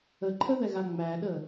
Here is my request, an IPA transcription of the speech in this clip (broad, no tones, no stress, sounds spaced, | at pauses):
ə ǃʰ ə ð ɛ ɣ a ŋ͡m æ ɗ ə